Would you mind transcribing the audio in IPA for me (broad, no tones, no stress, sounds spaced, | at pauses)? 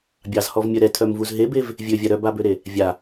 bʲ ɑ z h ɔ v mʲ œ ɾ ɛ tʰ œ m v u z ɦ e b e v | vʲ ø vʲ a ɾ œ b a b ø ɾ e | vʲ a